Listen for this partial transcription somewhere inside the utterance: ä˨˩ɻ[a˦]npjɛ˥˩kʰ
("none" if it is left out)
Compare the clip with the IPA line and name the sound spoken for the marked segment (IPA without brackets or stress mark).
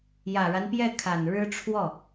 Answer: a˦